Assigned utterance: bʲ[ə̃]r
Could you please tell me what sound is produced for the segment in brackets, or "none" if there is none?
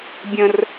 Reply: ə̃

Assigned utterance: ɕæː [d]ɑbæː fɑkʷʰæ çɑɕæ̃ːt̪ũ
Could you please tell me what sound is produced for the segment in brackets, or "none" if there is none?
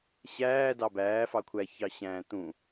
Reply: d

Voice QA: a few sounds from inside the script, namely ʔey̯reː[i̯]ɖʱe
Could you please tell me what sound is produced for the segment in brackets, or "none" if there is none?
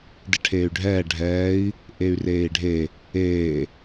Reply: i̯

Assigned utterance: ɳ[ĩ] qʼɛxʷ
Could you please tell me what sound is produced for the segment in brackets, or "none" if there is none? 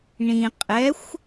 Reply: ĩ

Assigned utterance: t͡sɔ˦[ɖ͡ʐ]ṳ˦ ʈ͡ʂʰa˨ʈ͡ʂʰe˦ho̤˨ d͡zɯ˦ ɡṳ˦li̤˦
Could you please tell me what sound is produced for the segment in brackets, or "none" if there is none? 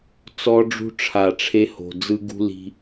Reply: ɖ͡ʐ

